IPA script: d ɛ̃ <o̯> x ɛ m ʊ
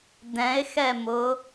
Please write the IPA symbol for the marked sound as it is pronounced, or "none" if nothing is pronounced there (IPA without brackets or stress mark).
e̯